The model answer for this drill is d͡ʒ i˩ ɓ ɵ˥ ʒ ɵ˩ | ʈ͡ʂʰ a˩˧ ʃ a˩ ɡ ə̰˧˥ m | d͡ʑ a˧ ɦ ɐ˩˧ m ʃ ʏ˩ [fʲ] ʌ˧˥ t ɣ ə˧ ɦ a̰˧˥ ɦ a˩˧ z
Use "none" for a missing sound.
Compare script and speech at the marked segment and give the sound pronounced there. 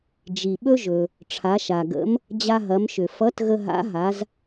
f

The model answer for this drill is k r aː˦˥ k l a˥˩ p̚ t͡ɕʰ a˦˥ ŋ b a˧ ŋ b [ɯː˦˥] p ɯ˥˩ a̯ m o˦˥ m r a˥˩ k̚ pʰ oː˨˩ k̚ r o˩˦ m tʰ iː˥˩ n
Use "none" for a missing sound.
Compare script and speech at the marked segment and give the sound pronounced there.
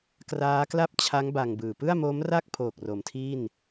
ɯː˨˩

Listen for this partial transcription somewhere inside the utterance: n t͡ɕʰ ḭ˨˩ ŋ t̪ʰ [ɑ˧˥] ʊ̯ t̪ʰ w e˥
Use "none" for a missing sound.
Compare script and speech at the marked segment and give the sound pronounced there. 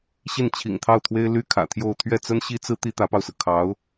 ɑ˥˩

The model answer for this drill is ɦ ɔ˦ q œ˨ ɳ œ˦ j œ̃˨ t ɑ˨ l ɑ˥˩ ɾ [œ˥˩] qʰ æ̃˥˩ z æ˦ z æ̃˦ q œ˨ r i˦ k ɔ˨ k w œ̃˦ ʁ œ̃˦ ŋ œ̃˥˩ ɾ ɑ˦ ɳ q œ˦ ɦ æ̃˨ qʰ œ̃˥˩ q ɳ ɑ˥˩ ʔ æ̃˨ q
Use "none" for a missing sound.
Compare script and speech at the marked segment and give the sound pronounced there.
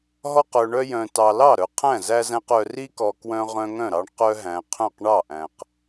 œ˨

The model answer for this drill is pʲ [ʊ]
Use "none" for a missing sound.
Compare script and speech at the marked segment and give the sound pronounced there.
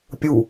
u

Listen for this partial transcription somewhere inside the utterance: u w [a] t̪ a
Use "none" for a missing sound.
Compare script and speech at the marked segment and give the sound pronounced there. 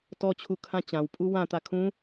ã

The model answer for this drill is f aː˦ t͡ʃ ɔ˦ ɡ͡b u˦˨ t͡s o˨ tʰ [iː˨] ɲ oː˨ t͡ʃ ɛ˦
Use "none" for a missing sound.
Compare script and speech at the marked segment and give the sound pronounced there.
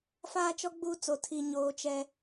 i˨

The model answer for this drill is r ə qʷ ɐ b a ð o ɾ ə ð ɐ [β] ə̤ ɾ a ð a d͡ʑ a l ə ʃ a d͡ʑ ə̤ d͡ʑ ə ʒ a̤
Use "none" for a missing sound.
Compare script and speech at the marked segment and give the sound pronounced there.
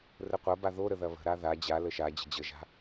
β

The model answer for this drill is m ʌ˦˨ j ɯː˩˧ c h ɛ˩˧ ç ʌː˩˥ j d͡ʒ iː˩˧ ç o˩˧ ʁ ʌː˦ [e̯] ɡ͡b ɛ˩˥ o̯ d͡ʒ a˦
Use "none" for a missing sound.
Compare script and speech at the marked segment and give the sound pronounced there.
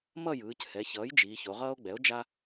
o̯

